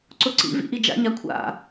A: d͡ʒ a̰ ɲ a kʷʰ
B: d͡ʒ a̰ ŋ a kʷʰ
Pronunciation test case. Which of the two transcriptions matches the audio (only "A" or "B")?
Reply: A